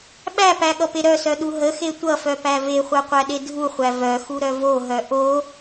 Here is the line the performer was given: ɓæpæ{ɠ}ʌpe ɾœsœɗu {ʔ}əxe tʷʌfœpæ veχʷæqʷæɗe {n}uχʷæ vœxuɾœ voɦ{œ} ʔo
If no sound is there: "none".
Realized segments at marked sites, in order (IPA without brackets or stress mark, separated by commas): ɠ, ɦ, dʱ, œ